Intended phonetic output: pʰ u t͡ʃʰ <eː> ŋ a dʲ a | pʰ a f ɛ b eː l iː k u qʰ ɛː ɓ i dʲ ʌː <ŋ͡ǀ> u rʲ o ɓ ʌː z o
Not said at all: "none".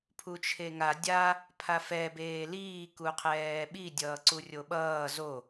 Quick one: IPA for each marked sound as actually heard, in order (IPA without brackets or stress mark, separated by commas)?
e, ǀ